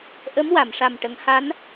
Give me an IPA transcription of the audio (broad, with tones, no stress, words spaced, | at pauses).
ʔə˧˥m wa˨˩˨mʂa˨˩m ʈə˨˩˦ŋha˧˥n